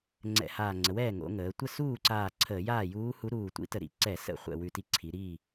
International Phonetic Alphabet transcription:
ŋ͡ǀ ɛ̰˧˩˧ h aː˧˩ ŋ͡ǀ ə˩˧ w ɛː˥˩ ŋ o̰˩˧ ŋ əː˩˧ tʷ ə˥˩ s uː˥˩ ǀ aː˧˩ ǀʰ əː˧˩˧ j aː˥˩ j uː˧˥ h u˧˥ ɾ uː˧˩ tʷ ḭ˧˥ t ə˧˩˧ ɾ ḭ˧˩ ǀ ɛ˧˩˧ s ə̰˧˩ χʷ ɛ̰˥˩ w ʉ˧˩ t i˧˥ ǀʰ i˩˧ ɾ i˥˩

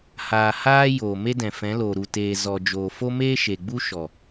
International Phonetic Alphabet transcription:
h aː˧ h aː˦ j oː˨ m e˦ d ɛ̃˨ f ɛ̃˨˦ l oː˨ ɾ u˨ t eː˨ z ɔ˨ d͡ʒ oː˨ f o˦ m eː˦ ʃ e˨ ɡ͡b u˦ ʃ ɔ˨

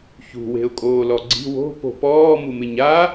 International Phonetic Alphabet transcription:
ç ṳ w e̤ ʊ̯ kʼ oː l ɔ ɡ͡ǀ i̤ w o̤ p o̤ p ɔː m u m ɪ ɲ a

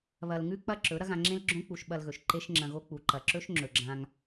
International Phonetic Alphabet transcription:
β ɐ˧ l ŋ ʉ˦ k͡p ɐ˦ ǁ ɵ˨˦ ɾ ɐ˦ ɣ ã˧ ŋ͡ǁ ẽ˦ l ɡ͡ǁ õ˦ k͡p u˧ ʃ ɓ ɐ˧ l ɣ ɵ˨ ʃ ǃ e˦ ʃ ŋ͡ǁ ɐ̃˧ ɣ o˦ k͡p u˨ ǃ ɐ˨ ǁ ɵ˦ ʃ ŋ͡ǁ ɵ˨ ɡ͡ǁ ã˧ ŋ

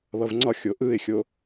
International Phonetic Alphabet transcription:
β ʌ v ŋ͡ǀ ɒ xʲ o ʔ ɯ ɪ̯ xʲ o

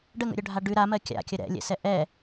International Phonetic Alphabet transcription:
ɖ ə ŋ ə̰ ɾʲ œ ɖʱ a ɖ ʉ ɾ a m ɜ kʲ a̰ kʲ ə ɾ ɛ̰ lʲ ɛ̰ s ɛ ʔ ɛ

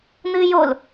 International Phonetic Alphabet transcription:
n̪ ɨː j o l

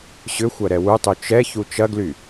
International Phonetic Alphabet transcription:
ɕ ʏ xʷ ɐ ɾ ɛ w u tˤ y t͡ʃ ɛ ç u t͡ʃ ɐ ɡ l y

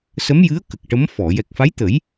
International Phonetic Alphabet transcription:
s ə˧˥ m j ɨ˧˥ ə̯ k ə˨˩ k̚ ʈ ə˧˥ m f ɔ˨˩˨ j ɛ˨˩ k̚ f a˧˥ j t̪ ə˨˩˦ j

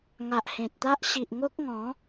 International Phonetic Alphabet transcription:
ŋ a˨ ʔ h ẽ˨ t̚ t̪ a˦ ʔ ɕ i˨ ʔ ŋ o˦ k̚ ŋ ɔ̃˨˦

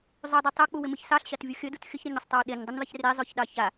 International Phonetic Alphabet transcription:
zˤ u dˤ ɯ tˤ o k͡p u w ɪ m ɯ ç s ɑ ɬ ɕ ɑ t vʲ u xʲ ə d u t xʲ ə ç ɾ e ɲ ə sˤ tˤ ɑ w ɗ e ɲ dˤ ə ɲ ðˤ ɪ ç r e zˤ o ç ɗ ɑ ç a

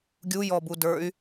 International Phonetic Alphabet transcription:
ɡʲ u j ɔ b u d ə˞ y̯

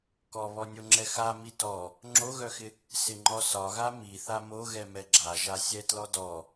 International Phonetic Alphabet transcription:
k ɔ β ɔ nʲ o ŋ͡ǁ ɛ x a m i t ɔ | ŋ͡ǁ o ɣ œ x ɪ | s ɪ ŋ͡ǃ ɔ s ɒ ɣ a m i θ a m o ɣ ɛ m ɛ ɡ͡ǁ a ʒ a sʲ ɛ t l ɔ d ɔ

